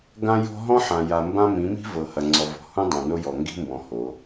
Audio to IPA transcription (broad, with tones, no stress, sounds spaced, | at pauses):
ɡ ã˦ j ɔ̤˦ ɦ ɔ̃˦ ħ ã˨ j a˨ m b ã˦ m ĩ˨˦ m i̤˦ v ɤ˨ h ɐ˨ ŋ͡ǀ ɔ˨ v ɔ̤˨ h ũ˦ dˤ ã˨ n o˦ j ɔ˨ ŋ ɡ i̤˦ m b ɔ̃˨ h o˨˦